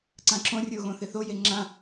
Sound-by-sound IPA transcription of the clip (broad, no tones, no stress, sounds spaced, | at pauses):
ǀ ã ǁ õ rʲ o ɣ õ θ ɪ θ o j e ŋ͡ǁ ã